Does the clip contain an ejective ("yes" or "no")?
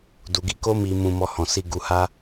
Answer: no